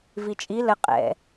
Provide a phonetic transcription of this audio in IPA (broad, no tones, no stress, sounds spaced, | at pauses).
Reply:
v i t͡ʃʼ i l ə qʼ ɛ̰